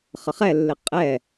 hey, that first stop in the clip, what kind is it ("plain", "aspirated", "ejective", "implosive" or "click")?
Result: ejective